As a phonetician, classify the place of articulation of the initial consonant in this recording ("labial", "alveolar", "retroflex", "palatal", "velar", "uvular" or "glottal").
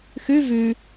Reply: velar